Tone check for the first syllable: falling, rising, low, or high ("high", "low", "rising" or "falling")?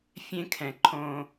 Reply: high